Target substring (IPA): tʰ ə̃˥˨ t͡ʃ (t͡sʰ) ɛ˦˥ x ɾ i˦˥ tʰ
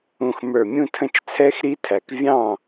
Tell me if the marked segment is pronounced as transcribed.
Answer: yes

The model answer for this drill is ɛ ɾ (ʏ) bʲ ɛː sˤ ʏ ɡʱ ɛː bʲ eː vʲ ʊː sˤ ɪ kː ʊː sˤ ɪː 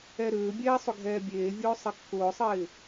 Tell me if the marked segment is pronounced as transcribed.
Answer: no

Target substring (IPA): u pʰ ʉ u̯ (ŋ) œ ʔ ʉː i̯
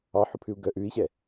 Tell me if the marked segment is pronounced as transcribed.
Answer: no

